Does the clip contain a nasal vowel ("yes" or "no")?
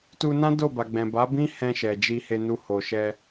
yes